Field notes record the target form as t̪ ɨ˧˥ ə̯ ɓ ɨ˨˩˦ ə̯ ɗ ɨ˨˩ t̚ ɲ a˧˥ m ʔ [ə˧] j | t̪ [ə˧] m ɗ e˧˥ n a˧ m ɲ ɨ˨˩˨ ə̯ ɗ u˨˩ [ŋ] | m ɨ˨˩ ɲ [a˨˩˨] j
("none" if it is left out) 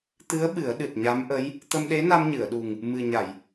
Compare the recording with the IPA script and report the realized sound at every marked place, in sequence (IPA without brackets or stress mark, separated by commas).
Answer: ə˧˥, ə˧, ŋ, a˨˩˨